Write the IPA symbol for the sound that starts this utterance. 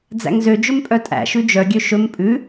d͡z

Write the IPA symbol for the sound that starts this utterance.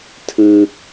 tʰ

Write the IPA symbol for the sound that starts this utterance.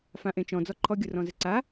f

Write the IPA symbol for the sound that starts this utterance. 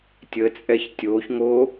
tʲ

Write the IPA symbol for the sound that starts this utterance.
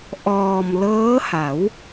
ʔ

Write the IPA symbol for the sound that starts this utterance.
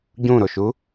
ɟ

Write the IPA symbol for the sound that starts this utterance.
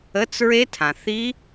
ə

